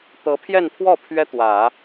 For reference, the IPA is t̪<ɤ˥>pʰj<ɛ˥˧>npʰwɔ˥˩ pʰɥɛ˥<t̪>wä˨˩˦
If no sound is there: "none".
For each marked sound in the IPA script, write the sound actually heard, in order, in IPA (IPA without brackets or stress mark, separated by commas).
ɤ˧˥, ɛ˥˧, t̪